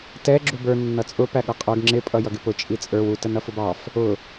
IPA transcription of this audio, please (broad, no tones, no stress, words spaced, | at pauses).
tɛ ɡ͡ǁubə˞ nːʌt͡sʼʊ pæɠʌqʼə˞ɡ ŋ͡ǁɪ pʼʌjʌɡɪpʊ t͡ʃʼit͡sʼə˞w ut ənʌfʊbɑf | ʊ